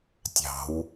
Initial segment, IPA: tʲ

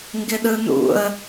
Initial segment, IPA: ŋ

